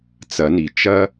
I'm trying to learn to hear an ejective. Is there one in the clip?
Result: no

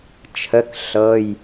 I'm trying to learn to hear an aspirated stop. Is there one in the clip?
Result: yes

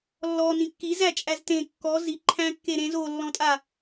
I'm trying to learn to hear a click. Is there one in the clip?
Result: yes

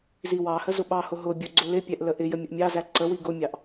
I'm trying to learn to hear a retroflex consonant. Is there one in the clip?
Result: no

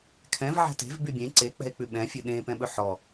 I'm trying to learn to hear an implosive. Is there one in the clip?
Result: yes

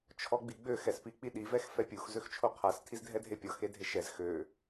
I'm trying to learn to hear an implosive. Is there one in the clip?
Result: yes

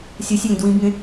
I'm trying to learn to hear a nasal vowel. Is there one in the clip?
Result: yes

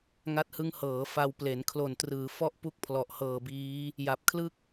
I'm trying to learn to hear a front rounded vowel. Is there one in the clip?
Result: no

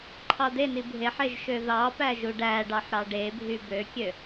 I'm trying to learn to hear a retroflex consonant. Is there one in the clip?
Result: yes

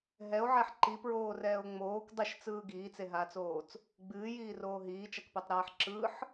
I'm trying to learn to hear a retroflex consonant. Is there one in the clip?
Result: no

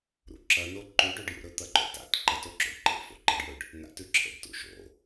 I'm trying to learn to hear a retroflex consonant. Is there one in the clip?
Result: yes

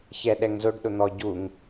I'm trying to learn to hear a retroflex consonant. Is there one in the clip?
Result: yes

